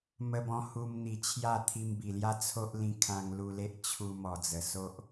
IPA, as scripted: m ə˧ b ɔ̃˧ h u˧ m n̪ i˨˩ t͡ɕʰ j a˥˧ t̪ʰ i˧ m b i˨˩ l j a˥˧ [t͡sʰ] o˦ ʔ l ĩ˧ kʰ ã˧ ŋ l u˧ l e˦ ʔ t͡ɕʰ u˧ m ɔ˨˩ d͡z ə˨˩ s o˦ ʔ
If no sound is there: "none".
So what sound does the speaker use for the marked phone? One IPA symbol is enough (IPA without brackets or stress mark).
t͡sʰ